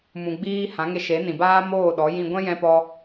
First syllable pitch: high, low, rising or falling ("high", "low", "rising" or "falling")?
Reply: low